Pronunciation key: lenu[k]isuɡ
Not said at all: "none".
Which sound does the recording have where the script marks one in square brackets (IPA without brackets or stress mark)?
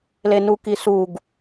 k